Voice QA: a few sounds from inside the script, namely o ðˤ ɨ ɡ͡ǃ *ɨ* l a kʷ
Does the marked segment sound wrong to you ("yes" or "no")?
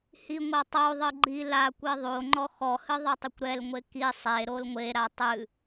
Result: yes